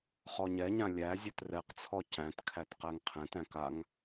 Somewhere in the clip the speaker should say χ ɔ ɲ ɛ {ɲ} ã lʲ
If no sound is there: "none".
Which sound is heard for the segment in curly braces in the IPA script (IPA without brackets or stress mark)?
ɲ